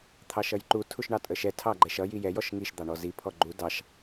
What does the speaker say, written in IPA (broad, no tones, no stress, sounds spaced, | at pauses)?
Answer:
t̪ʰ ɑ ʃ ʌ j ǃ u tʰ u ʃ ɳ ɑ tʼ ə ʃ ɛ tʰ ɑ ɡ͡ǃ ɛ ʃ ʌ j i j ɛ j ɔ ʃ ŋ i ʃ d̪ ɑ ɳ ɔ z i pʰ ɔ ɡ͡ǃ u d ɑ ʃ